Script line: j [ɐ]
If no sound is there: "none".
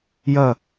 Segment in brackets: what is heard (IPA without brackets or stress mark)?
ɐ